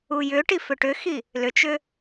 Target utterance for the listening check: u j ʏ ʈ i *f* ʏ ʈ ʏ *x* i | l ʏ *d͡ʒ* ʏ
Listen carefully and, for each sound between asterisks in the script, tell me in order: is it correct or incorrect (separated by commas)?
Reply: correct, correct, incorrect